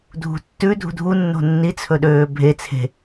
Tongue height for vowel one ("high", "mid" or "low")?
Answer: high